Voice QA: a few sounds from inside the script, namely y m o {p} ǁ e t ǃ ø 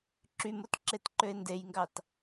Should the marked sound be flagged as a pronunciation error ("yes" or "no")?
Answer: yes